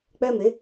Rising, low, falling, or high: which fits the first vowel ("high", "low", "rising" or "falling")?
high